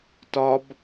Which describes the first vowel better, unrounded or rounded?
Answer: rounded